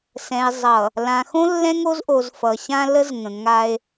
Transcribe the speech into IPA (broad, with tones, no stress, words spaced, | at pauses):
sɛ̃˨e̯ zˤʌ˨ | lã˨xõ˦ lːɛ̃˦ŋo˦zʔo˨z fʌ˨ɕã˦ lə˦zŋə̃˨ŋa˦e̯